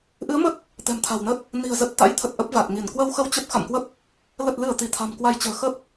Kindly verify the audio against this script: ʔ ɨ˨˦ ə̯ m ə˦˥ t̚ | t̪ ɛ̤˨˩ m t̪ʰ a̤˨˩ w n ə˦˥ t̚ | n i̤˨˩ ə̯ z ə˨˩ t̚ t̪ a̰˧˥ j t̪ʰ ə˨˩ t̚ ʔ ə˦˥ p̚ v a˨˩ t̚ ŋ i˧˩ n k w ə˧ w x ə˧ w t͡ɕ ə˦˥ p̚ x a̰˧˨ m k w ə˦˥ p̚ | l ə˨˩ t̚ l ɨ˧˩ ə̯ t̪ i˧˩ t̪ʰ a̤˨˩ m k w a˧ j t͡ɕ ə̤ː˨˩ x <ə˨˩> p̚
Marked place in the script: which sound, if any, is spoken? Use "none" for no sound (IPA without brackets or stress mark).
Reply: ə˦˥